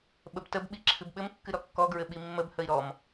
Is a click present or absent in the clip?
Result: present